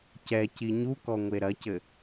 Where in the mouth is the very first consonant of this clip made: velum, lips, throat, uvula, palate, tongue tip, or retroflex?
palate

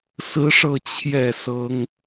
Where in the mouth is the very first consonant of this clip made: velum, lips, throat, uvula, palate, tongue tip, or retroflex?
tongue tip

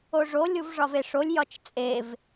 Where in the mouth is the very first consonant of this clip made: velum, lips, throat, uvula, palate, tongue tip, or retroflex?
retroflex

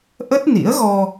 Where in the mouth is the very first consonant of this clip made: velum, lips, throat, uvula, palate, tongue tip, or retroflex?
throat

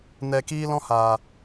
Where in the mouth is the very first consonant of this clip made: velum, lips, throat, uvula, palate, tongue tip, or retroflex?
tongue tip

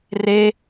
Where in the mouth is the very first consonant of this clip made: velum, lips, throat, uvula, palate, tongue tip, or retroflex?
tongue tip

